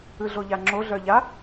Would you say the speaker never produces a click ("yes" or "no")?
no